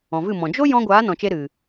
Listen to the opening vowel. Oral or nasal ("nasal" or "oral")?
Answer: nasal